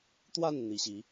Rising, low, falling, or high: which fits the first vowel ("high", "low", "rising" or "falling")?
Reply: falling